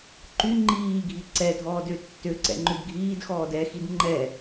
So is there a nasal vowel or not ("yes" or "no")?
no